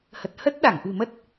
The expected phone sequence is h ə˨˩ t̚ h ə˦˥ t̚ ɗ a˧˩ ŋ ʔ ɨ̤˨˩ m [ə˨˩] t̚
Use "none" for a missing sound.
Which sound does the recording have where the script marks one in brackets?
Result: ə˦˥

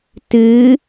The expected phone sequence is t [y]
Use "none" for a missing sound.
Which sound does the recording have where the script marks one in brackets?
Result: ɨ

